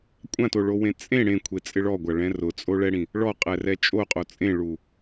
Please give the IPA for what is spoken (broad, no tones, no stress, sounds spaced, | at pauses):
kʷʼ ã t o ɭ o w ẽ t͡sʼ ẽ ɽ ẽ kʷʰ e t͡sʼ ɪ ɭ ɔ ɡʷ a ɭ ɛ̃ r ʊ t͡sʼ o ɭ ɛ ɽ ĩ | ɭ ɔ qʼ ɛ r ɛ t͡ʃʼ o qʼ o t͡sʼ ẽ ɭ u